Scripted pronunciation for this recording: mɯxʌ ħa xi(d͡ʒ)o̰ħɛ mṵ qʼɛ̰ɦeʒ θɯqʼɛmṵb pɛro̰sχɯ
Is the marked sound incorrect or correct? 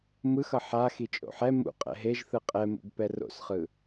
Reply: incorrect